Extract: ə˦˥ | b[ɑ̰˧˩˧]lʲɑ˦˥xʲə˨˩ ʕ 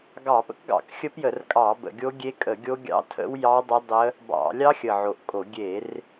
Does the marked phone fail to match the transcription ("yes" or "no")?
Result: no